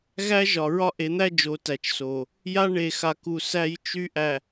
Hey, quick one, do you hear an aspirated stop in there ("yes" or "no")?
no